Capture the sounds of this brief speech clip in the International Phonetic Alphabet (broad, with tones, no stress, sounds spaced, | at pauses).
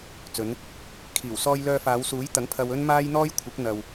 t͡s ɵ˨˧ n | kʰ iː˨˩ w s ɔː˧ j l œː˧ f aː˨˧ w s uː˨˥ j t̪ ɐ˨˥ ŋ pʰ ɐ˧ w ɵ˥ n m aː˥ j n̪ ɔː˥ j kʷʰ ɪ˨˥ k̚ n̪ ɐ˨ w